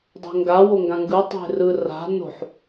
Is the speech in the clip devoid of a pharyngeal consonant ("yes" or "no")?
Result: no